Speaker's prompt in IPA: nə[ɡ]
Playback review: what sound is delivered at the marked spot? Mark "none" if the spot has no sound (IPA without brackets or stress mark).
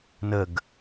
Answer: ɡ